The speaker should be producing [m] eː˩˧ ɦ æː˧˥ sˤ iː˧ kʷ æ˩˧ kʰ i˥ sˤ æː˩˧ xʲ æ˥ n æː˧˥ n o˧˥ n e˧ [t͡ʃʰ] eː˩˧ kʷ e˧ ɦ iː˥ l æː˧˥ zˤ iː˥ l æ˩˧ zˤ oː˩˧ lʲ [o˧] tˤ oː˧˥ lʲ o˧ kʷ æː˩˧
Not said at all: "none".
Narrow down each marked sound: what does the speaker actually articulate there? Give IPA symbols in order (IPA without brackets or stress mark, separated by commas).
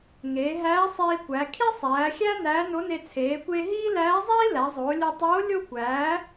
ŋ, t͡sʰ, o˧